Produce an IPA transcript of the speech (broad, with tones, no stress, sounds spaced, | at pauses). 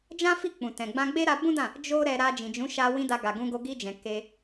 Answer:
d͡ʒ ã˦ f i˦˨ k͡p ũ˨ t ɛ̃˨ ɡ͡b ã˧ ɡ͡b e˦ ɾ a˧ b ũ˦ d ã˦˨ | d͡ʒ o˦ ɾ ɛ˧ ɾ a˧ d͡ʒ ĩ˨ d͡ʒ ũ˨˦ ʃ a˧ w ĩ˧ d a˧ ɡ a˨ ɡ ũ˧ ɡ o˧ ɡ i˧ d͡ʒ ɛ̃˨ k e˧